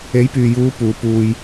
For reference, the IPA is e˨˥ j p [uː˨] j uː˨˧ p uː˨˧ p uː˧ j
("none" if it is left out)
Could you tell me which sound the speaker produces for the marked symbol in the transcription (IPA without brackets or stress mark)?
yː˨